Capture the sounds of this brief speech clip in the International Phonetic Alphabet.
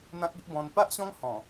n̪ ã˦ k̚ i˦ ʔ b ɔ̃˧ n p a˦ ʔ ɕ ɔ̃˦ ŋ h ɔ̃˨˩

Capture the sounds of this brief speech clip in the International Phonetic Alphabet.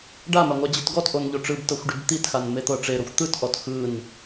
ɖ a m a ŋʷ a d͡ʑ ɯ t ɡ ɔ t ʔ o n ʎ o ʈ͡ʂ ɯ b t ɤ xʷ ɖ i b t̪ i t x a n m e t̪ ɤ ʈ͡ʂ e ɾ o xʷ t̪ ɯ t ʔ ɔ t x ɯ n

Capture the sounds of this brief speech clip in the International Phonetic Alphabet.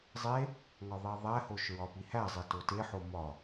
zˤ e | ŋ ɒ ðˤ i ðˤ æ h o ʃ ɹ ɒ p i h æ zˤ e t o t e ħ o m ɒ

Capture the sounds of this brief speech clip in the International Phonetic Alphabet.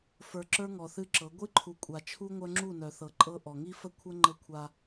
f ə˞˨ ǁ ə˞˦ ŋ ɔ˨ θ ɨ˦ ǁ ɤ˨˦ ɡʷ ɨ˦ ǃʰ u˨ kʷʼ a˨ t͡ʃʰ u˦ ŋʷ œ˦ ŋ͡ǁ u˦˨ n œ˨ θ ɤ˨ ǃʼ ɤ˦ ʔ ɔ˨ ŋ i˦ f ə˦ kʷʰ ɤ˦ ŋ͡ǃ ɤ˦ kʷʰ a˦

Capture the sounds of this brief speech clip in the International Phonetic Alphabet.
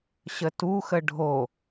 ɕ ə t u x ə ɖʱ o

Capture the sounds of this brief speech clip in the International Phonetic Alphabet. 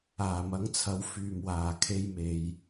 aː˨˩ m ɐ˨˥ ŋ t͡sʰ ɐ˨˥ w f yː˨˩ m w aː˨˩ kʰ e˧ j m e˨ j

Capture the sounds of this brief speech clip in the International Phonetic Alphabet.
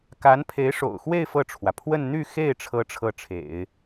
k a˧˥ n pʰ e˧˥ ɪ̯ ʂ o̰˨˩ ʊ̯ x w e˥˧ ɪ̯ f ɤ˥˩ ʈ͡ʂʰ w ä˩ pʰ w ə˥˧ n n̪ y˥˧ x e˥˩ ɪ̯ ʈ͡ʂʰ ɤ˥ ʈ͡ʂʰ ɤ˥˩ ʈ͡ʂʰ ḛ˨˩˦ ɪ̯

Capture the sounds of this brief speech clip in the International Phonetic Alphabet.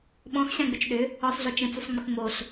ɓ ɔ̃ x ɕ ã ɡ͡b ʏ t͡ʃ ɗ ʏ | ɔ sˤ ɮ o t͡ʃ ə̃ t͡s ʏ sˤ ŋ͡m ʏ x ŋ͡m o ɬ

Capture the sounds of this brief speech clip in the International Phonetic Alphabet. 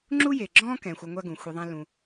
ŋ͡ǁ u˥ j e˩ ɡ͡ǁ ɔ̃ː˥ k ɛ̃˩ xʷ a˧ ŋʷ a˥ ɡ ũ˩ xʷ e˧ ðˤ ã˥ l ũ˧

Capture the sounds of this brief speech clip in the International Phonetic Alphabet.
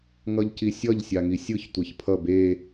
ŋ ʌ ʎ c i sʲ ʌ ʎ sʲ a ŋ i sʲ ɯ ç tʷ e ç pʰ ʌ b e

